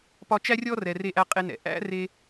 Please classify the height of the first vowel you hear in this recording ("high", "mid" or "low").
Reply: low